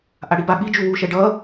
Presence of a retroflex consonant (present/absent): present